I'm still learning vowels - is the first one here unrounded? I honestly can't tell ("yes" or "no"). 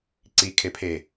yes